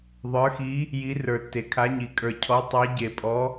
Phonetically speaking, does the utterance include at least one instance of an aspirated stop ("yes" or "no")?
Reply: yes